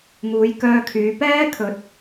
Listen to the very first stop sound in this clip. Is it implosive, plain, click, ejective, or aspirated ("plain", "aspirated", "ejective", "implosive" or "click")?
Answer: plain